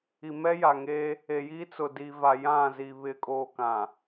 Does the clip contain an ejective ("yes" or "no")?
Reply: yes